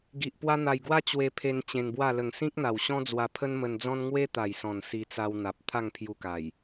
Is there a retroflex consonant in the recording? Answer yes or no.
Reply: no